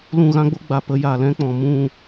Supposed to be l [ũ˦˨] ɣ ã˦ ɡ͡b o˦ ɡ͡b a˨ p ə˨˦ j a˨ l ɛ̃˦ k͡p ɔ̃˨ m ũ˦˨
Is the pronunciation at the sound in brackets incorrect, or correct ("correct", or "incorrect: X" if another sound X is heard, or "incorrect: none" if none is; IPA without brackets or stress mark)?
correct